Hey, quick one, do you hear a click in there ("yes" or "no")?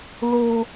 no